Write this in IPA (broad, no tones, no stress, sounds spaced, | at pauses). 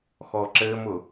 x ɔ ǁ ɘ m ʊ